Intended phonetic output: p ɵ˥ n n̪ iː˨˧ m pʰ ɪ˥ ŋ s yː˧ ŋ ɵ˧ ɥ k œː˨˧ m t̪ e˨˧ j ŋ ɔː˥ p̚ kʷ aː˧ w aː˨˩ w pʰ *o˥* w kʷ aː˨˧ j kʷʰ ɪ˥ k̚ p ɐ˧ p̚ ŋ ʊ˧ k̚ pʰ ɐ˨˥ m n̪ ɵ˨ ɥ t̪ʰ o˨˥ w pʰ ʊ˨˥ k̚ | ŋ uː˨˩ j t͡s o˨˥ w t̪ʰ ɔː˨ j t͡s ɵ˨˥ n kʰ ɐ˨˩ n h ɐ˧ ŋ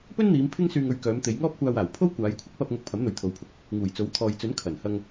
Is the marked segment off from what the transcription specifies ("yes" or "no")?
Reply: no